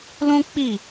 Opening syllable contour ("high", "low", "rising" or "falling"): high